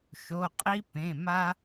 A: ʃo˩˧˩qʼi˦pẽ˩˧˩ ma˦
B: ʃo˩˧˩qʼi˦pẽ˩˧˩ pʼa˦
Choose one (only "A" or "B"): A